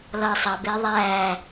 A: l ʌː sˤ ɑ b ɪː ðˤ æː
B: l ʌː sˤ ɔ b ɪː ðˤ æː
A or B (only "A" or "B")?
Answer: A